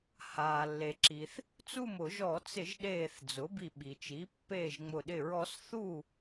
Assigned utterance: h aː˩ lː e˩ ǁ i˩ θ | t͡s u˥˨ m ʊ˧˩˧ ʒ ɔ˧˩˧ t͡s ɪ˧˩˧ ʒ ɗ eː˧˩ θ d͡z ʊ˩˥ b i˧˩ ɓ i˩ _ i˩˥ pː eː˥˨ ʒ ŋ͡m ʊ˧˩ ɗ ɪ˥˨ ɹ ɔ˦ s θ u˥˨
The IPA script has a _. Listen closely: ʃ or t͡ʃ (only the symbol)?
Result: t͡ʃ